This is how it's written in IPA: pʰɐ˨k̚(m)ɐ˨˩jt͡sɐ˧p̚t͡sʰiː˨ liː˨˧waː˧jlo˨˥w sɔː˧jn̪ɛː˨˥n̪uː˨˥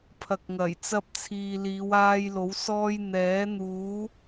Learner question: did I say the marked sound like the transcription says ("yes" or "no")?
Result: no